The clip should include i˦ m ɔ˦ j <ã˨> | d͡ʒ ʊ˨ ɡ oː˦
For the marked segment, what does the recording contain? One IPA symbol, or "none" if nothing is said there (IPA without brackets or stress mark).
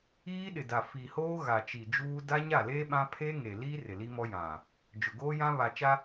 ã˨